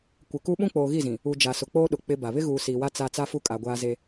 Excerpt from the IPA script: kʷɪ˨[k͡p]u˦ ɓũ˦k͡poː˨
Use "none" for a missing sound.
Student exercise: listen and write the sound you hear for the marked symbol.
k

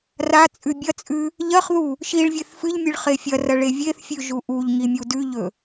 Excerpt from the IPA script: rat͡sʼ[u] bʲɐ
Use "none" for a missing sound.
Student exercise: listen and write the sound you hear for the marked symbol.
ʉ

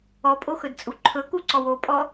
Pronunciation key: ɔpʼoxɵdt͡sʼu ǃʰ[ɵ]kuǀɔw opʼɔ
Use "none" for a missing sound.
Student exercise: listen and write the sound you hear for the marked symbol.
ɵ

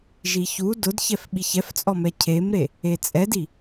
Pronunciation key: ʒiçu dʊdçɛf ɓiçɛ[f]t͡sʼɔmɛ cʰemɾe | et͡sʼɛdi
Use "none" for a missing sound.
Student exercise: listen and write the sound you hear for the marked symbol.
f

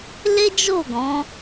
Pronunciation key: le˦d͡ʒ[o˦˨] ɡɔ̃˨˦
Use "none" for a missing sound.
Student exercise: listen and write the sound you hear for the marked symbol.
o˦˨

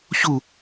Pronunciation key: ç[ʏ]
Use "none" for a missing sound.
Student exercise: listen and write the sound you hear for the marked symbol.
u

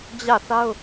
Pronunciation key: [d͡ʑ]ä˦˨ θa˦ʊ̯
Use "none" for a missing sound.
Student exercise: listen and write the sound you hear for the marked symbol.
d͡ʑ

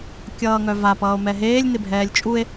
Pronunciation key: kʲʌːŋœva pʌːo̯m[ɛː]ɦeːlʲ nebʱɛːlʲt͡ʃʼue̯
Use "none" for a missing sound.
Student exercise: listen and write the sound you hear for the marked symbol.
ɛ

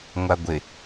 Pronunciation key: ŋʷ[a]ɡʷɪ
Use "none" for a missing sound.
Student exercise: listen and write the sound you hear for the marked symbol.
a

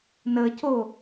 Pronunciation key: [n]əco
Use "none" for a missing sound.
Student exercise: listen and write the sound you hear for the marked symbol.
n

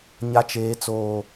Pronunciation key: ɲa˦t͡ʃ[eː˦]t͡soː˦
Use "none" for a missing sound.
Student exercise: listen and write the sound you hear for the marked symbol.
eː˦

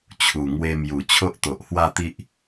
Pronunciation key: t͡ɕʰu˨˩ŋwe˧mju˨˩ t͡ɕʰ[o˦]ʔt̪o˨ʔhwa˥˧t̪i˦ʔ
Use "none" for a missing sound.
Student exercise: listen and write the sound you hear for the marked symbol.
o˦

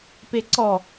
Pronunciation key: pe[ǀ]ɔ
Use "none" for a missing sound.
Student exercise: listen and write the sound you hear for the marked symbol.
ǀ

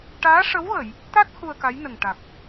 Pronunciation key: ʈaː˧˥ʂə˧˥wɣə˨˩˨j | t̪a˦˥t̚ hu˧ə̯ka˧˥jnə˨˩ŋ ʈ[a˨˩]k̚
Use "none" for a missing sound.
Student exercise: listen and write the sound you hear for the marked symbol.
a˨˩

